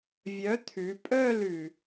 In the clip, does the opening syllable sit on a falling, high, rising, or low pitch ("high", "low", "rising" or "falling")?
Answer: rising